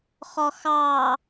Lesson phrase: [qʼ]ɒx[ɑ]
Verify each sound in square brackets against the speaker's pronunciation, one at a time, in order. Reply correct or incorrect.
incorrect: χ, correct

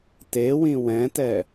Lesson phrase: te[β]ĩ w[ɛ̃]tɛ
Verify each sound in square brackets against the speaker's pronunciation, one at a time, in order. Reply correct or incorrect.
incorrect: w, correct

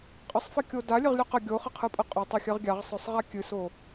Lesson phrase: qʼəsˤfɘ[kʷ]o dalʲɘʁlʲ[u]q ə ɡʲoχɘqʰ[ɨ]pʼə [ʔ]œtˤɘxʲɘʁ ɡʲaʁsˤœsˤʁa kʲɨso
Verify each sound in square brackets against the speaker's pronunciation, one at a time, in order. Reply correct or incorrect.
incorrect: kʲ, incorrect: o, correct, incorrect: qʼ

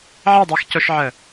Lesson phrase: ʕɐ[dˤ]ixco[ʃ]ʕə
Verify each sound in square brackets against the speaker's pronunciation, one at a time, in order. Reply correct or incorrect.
correct, correct

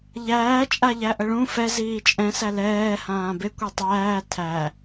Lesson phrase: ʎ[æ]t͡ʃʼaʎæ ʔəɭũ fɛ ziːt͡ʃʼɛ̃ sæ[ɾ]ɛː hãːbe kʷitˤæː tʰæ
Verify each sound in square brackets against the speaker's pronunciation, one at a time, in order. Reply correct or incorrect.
incorrect: æː, incorrect: l

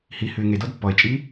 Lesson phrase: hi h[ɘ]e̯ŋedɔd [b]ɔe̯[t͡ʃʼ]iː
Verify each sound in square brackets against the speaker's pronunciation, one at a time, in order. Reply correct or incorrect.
incorrect: ʉ, incorrect: pː, correct

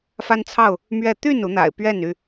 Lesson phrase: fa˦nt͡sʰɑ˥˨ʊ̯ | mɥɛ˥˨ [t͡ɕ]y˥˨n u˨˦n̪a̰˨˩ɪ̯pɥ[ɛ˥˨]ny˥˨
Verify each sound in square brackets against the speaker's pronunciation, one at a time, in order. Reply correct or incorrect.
incorrect: t̪, correct

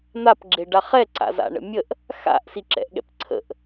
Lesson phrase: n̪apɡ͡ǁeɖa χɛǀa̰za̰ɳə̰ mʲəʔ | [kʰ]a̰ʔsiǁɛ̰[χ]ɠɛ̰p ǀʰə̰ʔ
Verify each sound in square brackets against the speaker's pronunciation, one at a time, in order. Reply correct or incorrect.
incorrect: x, incorrect: ʔ

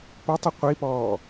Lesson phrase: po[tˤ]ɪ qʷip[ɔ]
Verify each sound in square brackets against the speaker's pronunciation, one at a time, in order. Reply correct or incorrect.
correct, incorrect: ɔː

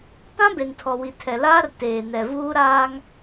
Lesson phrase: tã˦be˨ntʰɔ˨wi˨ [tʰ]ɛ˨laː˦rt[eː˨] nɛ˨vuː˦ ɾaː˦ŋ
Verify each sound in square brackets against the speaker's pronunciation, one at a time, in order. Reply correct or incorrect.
correct, correct

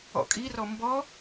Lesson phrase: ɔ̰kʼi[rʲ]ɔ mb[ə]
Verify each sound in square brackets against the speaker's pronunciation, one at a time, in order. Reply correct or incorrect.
incorrect: r, incorrect: ɔ

